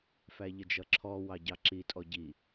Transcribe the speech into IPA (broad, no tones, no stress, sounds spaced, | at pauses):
f æ ʎ ə d͡ʒ ʌ ǁʰ ɔ w ɑ ɟ ɑ ǁ i tʼ ɔ ɟ i